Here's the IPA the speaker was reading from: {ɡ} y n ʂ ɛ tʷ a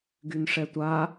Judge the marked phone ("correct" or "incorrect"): correct